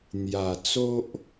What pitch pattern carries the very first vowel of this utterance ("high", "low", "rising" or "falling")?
low